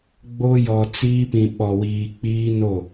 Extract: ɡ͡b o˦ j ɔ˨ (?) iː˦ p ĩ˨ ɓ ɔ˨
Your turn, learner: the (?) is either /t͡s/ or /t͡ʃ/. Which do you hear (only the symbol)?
t͡s